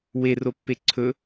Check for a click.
present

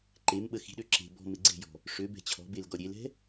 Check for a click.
present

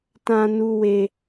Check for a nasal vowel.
present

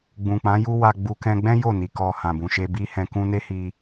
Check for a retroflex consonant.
absent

